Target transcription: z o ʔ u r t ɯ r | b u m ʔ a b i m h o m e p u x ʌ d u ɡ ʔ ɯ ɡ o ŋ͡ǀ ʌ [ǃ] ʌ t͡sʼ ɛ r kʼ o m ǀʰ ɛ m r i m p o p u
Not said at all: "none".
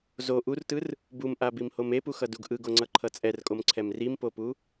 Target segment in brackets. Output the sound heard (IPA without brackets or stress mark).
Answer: ǃʰ